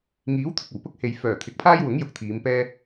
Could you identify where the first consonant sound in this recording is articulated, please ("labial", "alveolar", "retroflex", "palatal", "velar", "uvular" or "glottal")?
velar